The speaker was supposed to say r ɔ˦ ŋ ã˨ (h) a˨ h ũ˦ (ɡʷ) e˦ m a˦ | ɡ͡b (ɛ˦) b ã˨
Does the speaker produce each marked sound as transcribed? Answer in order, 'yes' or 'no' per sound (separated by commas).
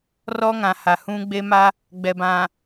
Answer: yes, no, no